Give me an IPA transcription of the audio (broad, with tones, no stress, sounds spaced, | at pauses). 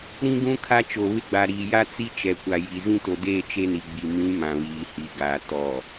ɾ ĩ˦ ɡ ũ˦ kʰ a˦ t͡ʃ o˨ β ɪ˦ ɡ͡b a˨ ɾ iː˨ j a˦ t͡s i˦ t͡ʃ ɛ˨ kʷ a˨ j i˨ z ĩ˦ t o˨ d eː˦˨ t͡ʃ e˦ n i˨ ɡ͡b i˨ m ĩ˨˦ m ã˨ β iː˨ h i˨ ɡ aː˨ t ɔ˨